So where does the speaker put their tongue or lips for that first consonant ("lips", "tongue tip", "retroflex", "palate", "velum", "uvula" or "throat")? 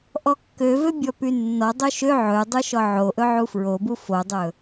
throat